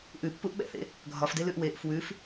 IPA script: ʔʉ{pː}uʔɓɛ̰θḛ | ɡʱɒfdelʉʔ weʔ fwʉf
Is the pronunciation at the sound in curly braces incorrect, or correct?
correct